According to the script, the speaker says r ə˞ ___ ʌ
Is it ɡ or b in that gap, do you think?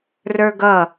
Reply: ɡ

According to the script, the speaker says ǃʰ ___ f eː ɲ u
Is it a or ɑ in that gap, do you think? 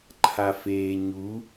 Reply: a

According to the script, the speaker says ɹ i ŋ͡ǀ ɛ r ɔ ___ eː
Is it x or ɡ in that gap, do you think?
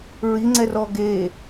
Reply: ɡ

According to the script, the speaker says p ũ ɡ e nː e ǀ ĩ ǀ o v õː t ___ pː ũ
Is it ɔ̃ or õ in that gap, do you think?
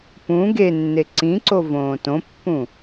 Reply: õ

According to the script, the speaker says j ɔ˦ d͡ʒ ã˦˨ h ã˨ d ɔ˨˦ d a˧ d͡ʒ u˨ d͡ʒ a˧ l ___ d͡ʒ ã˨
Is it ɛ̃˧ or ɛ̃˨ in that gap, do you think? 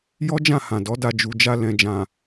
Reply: ɛ̃˨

